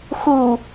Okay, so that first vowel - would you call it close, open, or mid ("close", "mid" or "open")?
close